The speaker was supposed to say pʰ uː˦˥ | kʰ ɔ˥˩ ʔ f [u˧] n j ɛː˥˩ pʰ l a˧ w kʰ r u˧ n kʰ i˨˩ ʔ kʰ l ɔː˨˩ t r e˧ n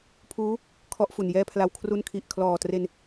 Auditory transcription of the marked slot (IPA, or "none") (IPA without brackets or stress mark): u˨˩